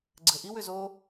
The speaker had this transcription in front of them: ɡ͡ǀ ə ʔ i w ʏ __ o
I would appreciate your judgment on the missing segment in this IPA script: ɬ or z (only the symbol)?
z